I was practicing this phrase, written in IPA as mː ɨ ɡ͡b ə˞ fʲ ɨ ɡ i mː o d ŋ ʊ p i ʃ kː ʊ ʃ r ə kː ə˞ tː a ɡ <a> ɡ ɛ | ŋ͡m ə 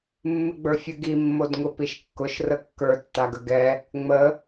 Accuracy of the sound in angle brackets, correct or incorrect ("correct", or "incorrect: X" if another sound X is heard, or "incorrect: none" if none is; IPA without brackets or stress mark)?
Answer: incorrect: ə